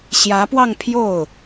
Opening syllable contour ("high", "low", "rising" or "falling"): rising